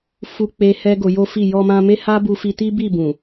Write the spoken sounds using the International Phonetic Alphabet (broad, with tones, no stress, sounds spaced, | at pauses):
f u˧ k͡p e˧ h ɛ˦ ɡ o˧ j o˦ f i˦˨ j ɔ˧ m ã˧ m e˦ h a˦ b u˧ f i˧ t i˦ b i˦˨ b ũ˨